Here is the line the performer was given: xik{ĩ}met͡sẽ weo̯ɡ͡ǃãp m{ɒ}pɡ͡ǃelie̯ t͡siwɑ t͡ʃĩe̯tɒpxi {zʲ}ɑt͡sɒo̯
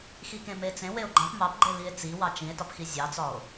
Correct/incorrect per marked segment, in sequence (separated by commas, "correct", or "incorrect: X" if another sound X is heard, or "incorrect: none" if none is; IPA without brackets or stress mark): incorrect: ẽ, incorrect: ɑ, correct